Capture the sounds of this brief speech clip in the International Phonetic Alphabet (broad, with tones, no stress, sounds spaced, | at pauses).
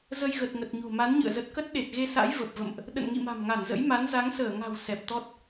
z ə˧ j ɣ ə˨˩ t̚ ŋ ə˨˩ t̚ ɲ o̤˨˩ m a˨˦ n ɲ ɨ̰˧˨ ə̯ z ə˨˩ t̚ k ə˦˥ t̚ ɗ e˨˩ t̚ ɣ e˧ s a̰˧˥ j v ə˨˩ p̚ v ə̰˧˨ m ʔ | ɗ ə̰˧˨ n ŋ ḭ˧˨ m a̤˨˩ m ŋ a˧˩ n z ə̰˧˥ j m a˨˦ n z a˨˦ ŋ s əː˧˩ ŋ a̤˨˩ w s ɛ˨˩ p̚ t̪ ɔ˦˥ t̚